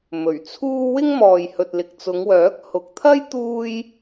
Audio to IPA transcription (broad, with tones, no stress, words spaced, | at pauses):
mɵ˨˩ɥt͡sʰuː˥ wɪ˥ŋmɔː˨jhɵ˨t̚ lɪ˨k̚t͡sʊ˨˧ŋwœː˨˥k̚ hʊ˨k̚t̪ʰɐ˥j t̪uː˥j